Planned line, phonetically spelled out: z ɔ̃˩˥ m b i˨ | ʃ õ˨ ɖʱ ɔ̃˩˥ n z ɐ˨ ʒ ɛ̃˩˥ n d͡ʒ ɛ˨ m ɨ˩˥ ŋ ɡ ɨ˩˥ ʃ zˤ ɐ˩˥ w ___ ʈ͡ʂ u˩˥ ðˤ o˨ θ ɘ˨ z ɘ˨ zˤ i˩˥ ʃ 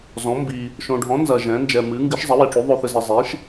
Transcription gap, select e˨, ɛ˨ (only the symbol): e˨